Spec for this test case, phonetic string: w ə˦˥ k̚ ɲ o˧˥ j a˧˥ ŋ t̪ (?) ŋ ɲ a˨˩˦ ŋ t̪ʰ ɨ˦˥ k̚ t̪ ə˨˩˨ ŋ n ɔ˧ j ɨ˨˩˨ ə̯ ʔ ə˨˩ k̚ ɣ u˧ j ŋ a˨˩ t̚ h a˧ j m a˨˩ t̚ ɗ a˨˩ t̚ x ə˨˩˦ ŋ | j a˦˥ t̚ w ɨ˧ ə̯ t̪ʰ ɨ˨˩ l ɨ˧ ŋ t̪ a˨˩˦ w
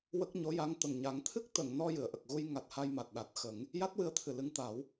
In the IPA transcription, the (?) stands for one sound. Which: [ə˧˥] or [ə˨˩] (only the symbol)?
ə˨˩